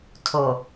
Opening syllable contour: low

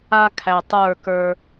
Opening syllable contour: high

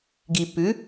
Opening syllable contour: low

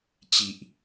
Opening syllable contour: low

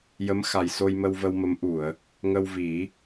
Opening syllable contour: rising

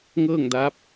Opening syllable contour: falling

